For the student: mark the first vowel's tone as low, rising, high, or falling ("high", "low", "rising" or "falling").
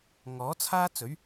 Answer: rising